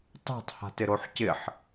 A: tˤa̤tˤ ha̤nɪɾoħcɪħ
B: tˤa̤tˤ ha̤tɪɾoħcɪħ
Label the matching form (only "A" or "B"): B